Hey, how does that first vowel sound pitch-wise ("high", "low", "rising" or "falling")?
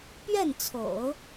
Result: falling